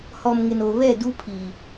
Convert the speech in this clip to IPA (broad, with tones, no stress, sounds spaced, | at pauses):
h ɔ˨ m ŋ ɪ˨ n o˨ β ɛ˦˨ d u˦ pʰ i˨